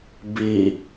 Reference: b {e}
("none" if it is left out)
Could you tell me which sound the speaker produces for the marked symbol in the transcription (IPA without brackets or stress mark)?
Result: i